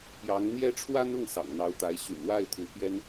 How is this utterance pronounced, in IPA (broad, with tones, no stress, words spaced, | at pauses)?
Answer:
pjɑ˧˥ŋn̪jɛ˥ ʈ͡ʂʰwa˥nʊ˥˩ŋ sɑ̰˨˩ŋn̪ɑ˧˥ʊ̯t̪a˧˥ɪ̯ ɕy̰˨˩nwa˥˩ɪ̯ t̪ʰu˧˥pjɛ˥n